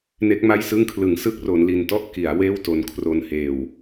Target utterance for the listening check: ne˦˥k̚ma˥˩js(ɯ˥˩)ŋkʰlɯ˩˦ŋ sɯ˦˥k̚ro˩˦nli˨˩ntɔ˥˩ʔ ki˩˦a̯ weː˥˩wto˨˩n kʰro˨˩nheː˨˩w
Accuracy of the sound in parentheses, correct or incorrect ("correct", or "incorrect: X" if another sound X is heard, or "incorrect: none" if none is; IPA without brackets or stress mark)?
correct